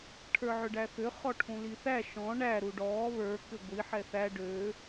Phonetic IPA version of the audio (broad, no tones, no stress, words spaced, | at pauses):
ʈʰə˞ʕʏɖæθʏ χɔʈʰũliθæ ʃɔ̃ ɳæ ɾuɖɔː βə˞ kʏɡʷi ħɛθæ ɖø